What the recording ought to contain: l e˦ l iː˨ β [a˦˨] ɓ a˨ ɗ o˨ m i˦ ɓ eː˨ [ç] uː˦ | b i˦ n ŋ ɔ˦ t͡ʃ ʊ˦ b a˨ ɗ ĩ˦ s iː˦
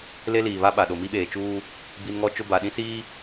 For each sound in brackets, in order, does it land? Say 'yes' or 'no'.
no, no

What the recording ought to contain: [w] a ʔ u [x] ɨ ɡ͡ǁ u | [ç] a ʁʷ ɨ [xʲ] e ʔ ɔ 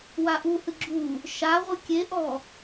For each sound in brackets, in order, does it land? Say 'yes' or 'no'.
yes, no, no, no

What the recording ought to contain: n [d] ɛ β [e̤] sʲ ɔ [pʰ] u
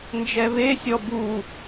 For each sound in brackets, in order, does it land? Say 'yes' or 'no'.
no, no, no

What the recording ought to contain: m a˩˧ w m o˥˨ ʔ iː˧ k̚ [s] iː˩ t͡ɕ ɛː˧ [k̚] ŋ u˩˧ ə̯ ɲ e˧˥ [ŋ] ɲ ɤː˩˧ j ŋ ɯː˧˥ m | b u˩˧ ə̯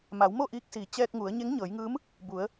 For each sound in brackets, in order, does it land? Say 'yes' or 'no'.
yes, yes, yes

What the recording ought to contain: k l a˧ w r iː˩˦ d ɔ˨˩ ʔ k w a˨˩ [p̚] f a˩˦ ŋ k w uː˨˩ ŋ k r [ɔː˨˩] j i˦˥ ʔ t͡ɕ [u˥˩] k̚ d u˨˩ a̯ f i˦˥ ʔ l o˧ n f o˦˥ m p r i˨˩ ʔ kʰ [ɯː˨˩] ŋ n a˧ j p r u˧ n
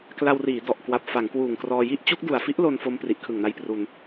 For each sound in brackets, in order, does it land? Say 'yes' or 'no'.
yes, no, no, no

